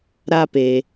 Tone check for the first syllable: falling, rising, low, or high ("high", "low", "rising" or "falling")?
high